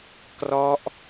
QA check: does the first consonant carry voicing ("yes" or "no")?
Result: no